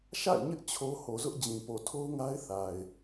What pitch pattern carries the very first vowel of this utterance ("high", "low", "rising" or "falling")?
falling